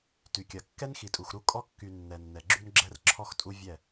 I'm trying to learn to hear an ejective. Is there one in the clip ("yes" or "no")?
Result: yes